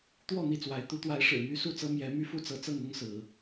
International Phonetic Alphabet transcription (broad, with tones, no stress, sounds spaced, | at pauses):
t̪ w ɔ˥˨ n̪ i˥˨ t͡s w a˨˦ ɪ̯ t̪ u˨˦ t̪ w a˨˦ ɪ̯ ʂ ɻ̩˨˩ m y˦ s u˥˨ t͡s ɤ˦ m j ɛ˨˦ m y˦ f u˦ t͡s ɤ˨˦ t͡s ɤ˥˨ ŋ ʊ˦ ŋ s ɹ̩˨˦